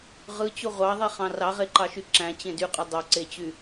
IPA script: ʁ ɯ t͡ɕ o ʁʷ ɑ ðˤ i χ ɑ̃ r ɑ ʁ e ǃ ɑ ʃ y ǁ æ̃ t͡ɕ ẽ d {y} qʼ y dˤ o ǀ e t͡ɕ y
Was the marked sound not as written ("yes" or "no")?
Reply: no